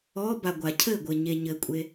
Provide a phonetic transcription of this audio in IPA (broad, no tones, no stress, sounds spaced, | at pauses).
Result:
ɔ b a ɡʷ a cʰ ɘ ɡʷ ɘ ɲ e ɲ ɘ kʷʼ e